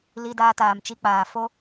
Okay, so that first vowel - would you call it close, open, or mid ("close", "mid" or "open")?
close